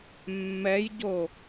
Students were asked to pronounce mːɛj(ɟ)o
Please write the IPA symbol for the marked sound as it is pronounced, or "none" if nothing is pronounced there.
ɟ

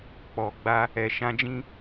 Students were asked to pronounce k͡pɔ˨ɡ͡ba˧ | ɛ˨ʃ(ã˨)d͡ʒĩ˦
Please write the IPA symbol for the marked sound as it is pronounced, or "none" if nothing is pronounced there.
ã˧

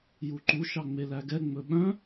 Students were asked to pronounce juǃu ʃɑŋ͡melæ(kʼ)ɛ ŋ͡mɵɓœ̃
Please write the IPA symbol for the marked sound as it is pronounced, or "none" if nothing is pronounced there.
ɡ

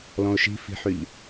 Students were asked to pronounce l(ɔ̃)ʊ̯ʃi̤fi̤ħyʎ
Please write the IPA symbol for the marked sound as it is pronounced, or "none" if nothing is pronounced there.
ɔ̃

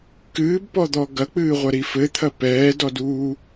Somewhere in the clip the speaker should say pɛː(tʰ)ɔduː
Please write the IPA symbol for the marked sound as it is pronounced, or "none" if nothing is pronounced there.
d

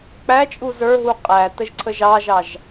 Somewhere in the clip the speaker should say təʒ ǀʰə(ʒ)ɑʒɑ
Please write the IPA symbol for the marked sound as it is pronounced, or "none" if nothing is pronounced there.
ʒ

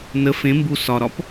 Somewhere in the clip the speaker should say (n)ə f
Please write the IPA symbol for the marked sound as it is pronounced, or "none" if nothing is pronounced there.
n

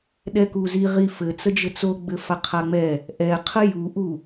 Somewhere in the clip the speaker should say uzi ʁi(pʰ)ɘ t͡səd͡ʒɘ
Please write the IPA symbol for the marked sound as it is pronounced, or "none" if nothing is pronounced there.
f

